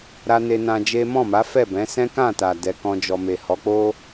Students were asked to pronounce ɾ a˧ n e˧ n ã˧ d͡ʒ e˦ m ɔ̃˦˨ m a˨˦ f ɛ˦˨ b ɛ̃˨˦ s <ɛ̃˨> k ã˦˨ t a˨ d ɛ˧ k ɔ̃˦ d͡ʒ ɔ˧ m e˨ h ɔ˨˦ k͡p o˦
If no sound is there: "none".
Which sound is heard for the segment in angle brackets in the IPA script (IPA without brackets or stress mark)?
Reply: ɛ̃˦